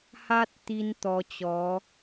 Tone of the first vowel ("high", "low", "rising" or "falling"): high